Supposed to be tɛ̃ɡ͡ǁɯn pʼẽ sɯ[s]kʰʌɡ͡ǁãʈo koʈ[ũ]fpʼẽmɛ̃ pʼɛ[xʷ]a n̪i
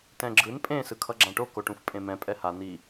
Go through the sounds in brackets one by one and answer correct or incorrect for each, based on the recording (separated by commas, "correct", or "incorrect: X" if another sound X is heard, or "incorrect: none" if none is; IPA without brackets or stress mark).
incorrect: none, correct, incorrect: h